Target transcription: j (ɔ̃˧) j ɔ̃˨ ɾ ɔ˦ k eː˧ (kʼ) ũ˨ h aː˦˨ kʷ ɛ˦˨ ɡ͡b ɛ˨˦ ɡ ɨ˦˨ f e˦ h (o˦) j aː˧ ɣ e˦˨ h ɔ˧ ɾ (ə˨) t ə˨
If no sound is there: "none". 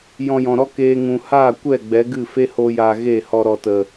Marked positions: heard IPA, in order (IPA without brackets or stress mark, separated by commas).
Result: ɔ̃˧, ŋ, o˦, ɔ˨